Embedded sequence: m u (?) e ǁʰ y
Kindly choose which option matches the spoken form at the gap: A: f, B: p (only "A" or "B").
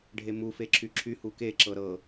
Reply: A